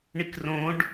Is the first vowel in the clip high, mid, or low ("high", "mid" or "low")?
high